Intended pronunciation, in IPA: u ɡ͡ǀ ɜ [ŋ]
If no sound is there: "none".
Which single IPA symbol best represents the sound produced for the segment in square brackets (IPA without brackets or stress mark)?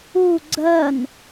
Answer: n